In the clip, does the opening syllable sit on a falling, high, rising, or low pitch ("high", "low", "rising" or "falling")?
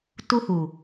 high